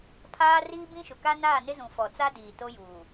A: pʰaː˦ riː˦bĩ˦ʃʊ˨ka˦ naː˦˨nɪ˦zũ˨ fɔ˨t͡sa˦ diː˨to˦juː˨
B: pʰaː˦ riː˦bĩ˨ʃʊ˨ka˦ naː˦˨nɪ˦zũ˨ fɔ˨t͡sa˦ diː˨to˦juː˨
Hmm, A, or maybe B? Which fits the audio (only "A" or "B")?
A